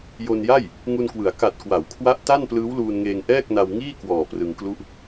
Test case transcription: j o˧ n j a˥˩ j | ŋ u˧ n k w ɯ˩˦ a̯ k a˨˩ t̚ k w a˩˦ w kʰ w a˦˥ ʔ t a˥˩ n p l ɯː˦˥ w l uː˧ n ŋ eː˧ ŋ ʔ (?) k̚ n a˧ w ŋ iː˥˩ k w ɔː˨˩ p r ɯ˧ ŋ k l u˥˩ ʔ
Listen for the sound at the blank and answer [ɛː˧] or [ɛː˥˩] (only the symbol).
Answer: ɛː˥˩